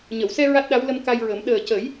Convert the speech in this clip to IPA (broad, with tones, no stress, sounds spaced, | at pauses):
ɲ ə˨˩˨ w s ɛ˧ ɹ a˦˥ t̚ ɗ a˧˥ w l ə˧ m k a˧ j ɹ ə˨˩˦ m ɗ əː˨˩ c ə˨˩˦ j